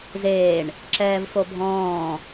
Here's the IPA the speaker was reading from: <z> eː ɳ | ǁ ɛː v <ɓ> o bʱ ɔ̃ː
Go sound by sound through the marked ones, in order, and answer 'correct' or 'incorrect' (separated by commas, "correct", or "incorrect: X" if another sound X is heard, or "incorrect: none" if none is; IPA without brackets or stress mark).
correct, incorrect: f